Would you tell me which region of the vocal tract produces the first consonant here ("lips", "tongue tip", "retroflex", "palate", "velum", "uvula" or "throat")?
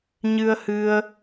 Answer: palate